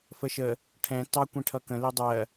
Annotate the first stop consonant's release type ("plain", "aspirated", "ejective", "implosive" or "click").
aspirated